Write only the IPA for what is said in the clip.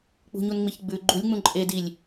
k͡p ṳ ɲ u n ŋ͡m i ç ɡ͡b ʉ ɡ͡ǃ u lʲ ŋ͡m ũ ǃʼ e d i lʲ

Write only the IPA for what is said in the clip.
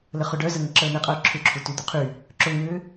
l ə χ ʊ ɖ œ z ə ŋ ə ǁ əː n̪ ɪ qʼ œː ǁʰ ʏ ǁʰ u t y d̪ u qʰ y | ǁ ʊ ŋ ʏː

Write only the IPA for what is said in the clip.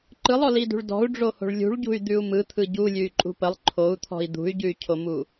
ǃ ɯ lˠ ɔ l i d ṳ ɭ d ɔ̤ u̯ ɖ͡ʐ o h o̤ ɭ lʲ ṳ ɭ ɟ ṳ y̯ d̪ ʉ u̯ m ɯ t̪ʰ ɯ ɟ u lʲ ʉ y̯ ǃʼ ṳ p ə lˠ ǃʰ o u̯ t̪ʰ ɔ̤ i̯ d̪ ṳ y̯ ɟ ʉ y̯ cʰ o m u

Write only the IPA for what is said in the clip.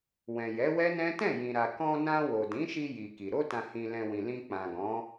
w ɛ̃˨ j ɛ˨˦ w ɛ˦ n ɛ̃˦ t ɛ̃˦˨ j ĩ˨ ɾ a˨ k ɔ̃˧ n ã˧ w o˨ d ĩ˨˦ ʃ i˧ j i˨ k i˨ ɾ o˧ t ã˨ h ĩ˨ l ɛ̃˨ w ĩ˨ l ĩ˧ k͡p ã˨ ɡ ɔ̃˨˦

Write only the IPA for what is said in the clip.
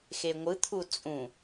x e ŋʷ ɯ t̪ʰ u t͡sʼ ũ

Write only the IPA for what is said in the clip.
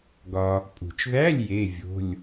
ɡ ɒ˧ | pʼ ṳ˨˩ t͡ʃ ð æ˧˥˧ lʲ j e˧˥˧ vʲ o̤˧˥˧ lʲ

